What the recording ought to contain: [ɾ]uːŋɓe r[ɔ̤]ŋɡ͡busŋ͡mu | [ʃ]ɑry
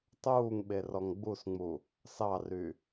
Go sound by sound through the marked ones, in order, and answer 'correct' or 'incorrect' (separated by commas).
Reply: incorrect, incorrect, incorrect